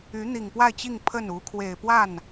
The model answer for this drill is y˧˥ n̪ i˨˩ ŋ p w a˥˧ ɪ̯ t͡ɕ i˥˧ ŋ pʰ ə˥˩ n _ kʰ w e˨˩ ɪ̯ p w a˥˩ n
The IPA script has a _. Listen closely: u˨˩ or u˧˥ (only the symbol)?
u˧˥